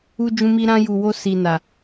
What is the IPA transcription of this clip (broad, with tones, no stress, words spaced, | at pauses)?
u˧d͡ʒũ˧mi˧ ɾã˧ju˨wo˧ si˨na˨